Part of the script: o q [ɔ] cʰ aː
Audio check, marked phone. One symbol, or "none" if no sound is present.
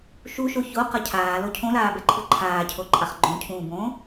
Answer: ʌ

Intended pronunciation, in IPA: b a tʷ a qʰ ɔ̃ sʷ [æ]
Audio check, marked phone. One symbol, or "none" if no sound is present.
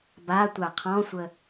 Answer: ə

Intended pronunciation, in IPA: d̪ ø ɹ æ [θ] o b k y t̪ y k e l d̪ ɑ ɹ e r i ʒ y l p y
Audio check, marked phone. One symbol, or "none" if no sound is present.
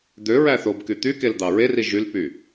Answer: θ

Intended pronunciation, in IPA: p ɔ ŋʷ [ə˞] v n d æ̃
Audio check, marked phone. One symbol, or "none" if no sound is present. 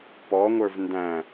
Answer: ə˞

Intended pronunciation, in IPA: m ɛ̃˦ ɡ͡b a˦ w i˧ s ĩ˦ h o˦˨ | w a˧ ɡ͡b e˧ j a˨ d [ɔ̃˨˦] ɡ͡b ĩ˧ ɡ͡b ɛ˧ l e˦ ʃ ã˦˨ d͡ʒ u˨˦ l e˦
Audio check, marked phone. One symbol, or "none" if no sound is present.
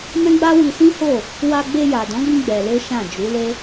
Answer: ɔ̃˨˦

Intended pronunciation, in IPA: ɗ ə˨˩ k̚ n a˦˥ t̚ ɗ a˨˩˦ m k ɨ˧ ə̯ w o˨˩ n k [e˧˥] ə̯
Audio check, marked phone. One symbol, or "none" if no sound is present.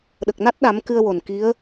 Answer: i˧˥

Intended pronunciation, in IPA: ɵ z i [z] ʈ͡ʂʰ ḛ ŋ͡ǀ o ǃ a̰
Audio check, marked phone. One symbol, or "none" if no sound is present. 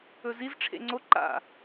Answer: z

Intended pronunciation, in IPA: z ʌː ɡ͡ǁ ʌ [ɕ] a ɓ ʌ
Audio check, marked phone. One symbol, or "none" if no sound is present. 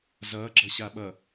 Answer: ɕ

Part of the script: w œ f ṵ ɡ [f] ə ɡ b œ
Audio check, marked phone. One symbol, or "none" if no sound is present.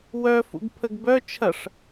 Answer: pʰ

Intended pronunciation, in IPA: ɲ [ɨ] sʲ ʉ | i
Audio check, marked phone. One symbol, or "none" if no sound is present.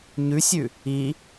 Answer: ʉ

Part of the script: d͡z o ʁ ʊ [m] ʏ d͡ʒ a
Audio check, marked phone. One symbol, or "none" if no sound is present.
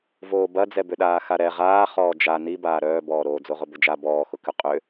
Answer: b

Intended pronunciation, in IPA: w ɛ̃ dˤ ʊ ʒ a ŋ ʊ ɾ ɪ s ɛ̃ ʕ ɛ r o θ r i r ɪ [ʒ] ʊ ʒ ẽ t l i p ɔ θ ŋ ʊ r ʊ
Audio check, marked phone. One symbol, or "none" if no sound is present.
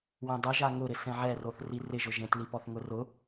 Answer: ʒ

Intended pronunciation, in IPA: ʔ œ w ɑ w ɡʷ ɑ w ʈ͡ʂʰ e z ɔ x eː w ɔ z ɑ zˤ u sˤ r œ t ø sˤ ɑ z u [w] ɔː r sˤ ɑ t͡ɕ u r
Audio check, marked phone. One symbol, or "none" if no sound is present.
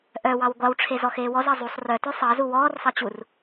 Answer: w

